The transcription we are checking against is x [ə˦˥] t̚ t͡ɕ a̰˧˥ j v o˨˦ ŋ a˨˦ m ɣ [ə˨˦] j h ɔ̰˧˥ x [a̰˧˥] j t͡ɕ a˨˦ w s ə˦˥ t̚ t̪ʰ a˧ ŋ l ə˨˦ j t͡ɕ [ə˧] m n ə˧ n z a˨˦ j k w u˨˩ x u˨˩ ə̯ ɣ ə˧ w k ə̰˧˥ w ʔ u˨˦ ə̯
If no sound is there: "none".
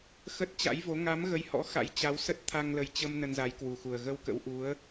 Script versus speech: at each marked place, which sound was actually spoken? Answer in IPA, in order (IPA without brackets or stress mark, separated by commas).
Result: ə˦˥, ə˨˦, a̰˧˥, ə˧